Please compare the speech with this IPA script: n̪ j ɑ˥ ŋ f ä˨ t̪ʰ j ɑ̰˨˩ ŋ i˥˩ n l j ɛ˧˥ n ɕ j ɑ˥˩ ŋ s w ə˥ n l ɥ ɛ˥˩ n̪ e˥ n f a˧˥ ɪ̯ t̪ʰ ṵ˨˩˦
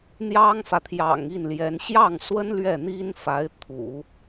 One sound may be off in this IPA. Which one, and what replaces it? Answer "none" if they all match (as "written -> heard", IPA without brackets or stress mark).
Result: e˥ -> i˥